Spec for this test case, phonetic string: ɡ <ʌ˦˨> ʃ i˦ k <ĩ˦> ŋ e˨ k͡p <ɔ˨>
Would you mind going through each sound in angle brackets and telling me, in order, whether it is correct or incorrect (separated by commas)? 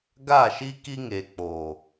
incorrect, incorrect, incorrect